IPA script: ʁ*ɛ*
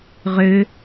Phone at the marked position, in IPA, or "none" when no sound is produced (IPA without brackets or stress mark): ø